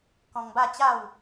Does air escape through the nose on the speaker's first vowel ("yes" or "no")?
yes